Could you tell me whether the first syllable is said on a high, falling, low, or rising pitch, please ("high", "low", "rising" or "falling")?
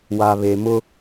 low